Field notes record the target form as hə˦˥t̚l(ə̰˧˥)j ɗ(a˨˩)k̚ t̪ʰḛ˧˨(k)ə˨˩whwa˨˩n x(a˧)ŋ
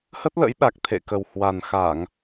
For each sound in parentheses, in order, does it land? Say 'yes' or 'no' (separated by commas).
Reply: yes, yes, yes, no